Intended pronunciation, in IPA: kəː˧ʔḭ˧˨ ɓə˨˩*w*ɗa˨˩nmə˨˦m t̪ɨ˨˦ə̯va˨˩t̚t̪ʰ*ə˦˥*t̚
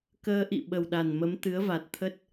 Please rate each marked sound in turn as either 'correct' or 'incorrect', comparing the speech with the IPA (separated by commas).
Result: correct, correct